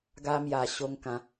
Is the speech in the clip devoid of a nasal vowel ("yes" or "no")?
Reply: no